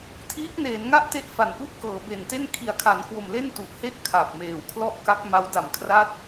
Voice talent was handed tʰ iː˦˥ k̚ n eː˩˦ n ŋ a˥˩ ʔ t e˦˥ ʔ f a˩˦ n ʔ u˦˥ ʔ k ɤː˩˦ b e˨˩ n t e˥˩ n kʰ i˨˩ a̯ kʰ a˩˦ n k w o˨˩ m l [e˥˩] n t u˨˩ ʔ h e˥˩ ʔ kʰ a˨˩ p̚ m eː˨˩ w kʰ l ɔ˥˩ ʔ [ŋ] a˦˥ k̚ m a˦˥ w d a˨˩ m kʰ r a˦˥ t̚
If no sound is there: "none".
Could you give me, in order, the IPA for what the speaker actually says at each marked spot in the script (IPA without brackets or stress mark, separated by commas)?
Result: e˥˩, k